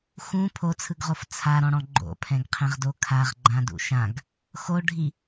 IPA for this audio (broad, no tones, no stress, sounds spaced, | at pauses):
x ũ pʰ o t͡sʰ ɯ ɡ ʁ o f t͡sʰ a ɾ ɔ̃ ɽ ɔ̃ ɡ͡ǃ o̰ pʰ ɛ̃ ɡ qʰ ɛ̃ ʁ d o kʰ a ʁ ɡ͡ǃ ã d ṵ ʃ ã ɡ | x o ɖʱ i